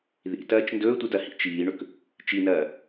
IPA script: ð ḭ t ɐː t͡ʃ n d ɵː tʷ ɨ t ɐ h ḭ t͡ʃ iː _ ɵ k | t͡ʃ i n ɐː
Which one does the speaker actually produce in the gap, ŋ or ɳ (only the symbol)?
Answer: ɳ